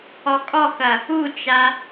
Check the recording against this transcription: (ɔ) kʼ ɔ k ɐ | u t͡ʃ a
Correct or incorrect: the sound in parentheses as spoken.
correct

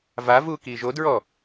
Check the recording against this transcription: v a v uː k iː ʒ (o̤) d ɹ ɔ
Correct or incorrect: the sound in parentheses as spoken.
incorrect: o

